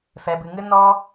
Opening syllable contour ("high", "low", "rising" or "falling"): low